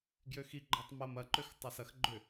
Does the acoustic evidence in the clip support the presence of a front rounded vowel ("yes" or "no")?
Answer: yes